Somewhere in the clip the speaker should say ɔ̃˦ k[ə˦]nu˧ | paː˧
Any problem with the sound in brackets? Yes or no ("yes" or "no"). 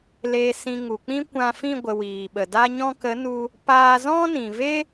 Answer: yes